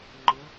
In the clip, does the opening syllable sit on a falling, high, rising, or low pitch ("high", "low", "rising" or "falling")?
rising